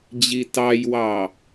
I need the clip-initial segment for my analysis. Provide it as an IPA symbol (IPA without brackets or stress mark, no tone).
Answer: d͡ʑ